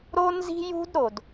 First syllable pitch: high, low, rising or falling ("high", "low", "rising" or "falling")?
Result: high